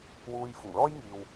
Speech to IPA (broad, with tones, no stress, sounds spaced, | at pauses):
w uː˧ j f ʊ˨˩ ŋ l ɔː˥ j ŋ iː˨ w